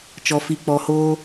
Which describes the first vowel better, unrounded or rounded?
rounded